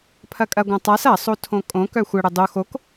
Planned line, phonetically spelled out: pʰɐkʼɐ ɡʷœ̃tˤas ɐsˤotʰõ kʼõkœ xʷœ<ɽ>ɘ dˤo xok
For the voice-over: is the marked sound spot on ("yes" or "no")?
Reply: yes